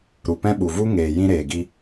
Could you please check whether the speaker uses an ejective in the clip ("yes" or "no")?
no